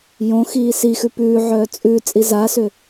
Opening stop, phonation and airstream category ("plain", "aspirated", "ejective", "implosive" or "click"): plain